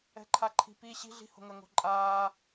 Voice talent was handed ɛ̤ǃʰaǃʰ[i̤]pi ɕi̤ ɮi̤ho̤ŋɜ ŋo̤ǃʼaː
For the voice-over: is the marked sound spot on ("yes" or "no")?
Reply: yes